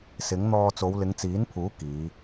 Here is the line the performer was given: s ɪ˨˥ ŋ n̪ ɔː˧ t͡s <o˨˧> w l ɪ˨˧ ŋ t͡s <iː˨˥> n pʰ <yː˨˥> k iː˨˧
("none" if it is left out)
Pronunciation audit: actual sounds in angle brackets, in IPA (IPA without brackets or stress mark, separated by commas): o˨˧, iː˨˥, uː˨˥